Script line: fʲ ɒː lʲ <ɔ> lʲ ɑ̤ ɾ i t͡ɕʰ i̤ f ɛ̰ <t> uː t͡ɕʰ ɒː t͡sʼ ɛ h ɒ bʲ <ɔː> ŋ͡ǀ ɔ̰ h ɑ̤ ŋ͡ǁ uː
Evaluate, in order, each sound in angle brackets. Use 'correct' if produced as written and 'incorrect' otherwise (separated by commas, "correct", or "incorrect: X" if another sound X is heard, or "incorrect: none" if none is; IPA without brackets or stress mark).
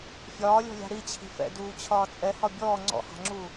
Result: incorrect: ɔ̤, incorrect: d, correct